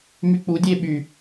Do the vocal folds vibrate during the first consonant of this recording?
yes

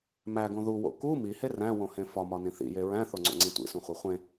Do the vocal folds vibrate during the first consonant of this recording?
yes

